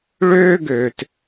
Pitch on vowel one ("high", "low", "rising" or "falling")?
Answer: high